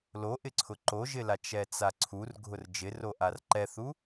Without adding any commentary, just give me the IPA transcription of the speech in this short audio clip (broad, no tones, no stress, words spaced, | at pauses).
loʔɪǀʰʊ ǃoʒɪla t͡ʃɛt͡saǀʰur ɡʱʊrd͡ʒɪroʔar ǃɛθu